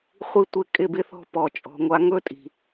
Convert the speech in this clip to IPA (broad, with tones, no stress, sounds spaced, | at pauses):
χʷ i˦ tʷ ɪ˦ kʼ ɪ˦˨ b ɪ˦ θ ɔ̤˦ p ɔ˨ t͡ʃʼ ɔ̤˨ ŋʷ a˦ ŋ ɵ˦ tʼ i̤˨